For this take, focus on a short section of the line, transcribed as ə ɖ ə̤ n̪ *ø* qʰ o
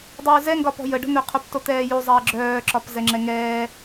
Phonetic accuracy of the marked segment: correct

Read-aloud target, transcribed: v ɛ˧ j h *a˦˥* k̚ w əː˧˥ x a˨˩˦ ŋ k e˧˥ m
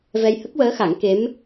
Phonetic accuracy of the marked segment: incorrect: ə˦˥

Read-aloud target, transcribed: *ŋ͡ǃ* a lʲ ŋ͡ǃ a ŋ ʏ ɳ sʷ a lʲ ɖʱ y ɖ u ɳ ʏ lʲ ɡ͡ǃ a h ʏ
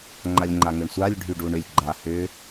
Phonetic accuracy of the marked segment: correct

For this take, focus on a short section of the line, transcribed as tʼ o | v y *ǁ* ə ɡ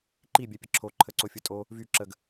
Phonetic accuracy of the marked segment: correct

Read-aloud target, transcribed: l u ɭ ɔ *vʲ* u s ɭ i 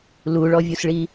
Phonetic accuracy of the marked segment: correct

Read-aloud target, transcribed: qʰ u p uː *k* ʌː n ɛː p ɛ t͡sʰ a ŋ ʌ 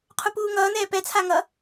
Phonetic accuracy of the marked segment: incorrect: ŋ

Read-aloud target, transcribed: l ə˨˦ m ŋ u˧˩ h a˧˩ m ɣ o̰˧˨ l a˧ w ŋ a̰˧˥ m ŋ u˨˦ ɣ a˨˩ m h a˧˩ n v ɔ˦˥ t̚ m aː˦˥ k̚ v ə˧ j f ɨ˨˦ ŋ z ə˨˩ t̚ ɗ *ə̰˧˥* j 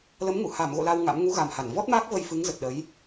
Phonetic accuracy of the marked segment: incorrect: ə˨˦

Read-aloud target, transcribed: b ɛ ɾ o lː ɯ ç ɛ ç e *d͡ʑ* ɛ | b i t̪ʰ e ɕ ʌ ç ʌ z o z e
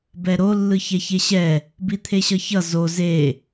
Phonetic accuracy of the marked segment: incorrect: ɕ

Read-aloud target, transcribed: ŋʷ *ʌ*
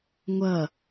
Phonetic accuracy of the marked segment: correct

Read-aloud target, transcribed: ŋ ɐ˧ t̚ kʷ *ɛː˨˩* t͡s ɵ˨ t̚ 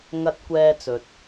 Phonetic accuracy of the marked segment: incorrect: ɛː˧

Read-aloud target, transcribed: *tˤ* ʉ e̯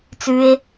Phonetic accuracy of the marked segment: incorrect: t͡s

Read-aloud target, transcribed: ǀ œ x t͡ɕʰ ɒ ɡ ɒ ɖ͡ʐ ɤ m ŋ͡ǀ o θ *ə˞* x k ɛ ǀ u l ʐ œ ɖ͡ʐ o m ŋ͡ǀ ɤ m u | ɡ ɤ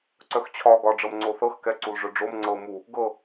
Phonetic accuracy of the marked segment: incorrect: ɤ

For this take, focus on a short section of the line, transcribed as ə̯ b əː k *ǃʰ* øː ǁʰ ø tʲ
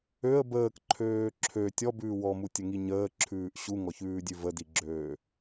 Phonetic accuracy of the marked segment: correct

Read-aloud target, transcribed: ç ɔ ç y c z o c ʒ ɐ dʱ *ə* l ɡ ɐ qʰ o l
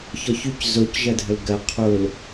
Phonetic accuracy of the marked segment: correct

